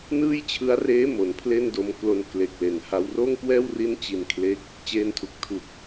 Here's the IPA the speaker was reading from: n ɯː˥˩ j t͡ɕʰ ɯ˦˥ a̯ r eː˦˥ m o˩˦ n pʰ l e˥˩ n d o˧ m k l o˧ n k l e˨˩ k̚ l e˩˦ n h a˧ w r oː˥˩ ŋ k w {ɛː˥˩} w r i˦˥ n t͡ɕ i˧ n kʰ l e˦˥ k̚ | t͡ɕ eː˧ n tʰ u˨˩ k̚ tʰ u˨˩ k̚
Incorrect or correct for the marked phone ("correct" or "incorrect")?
correct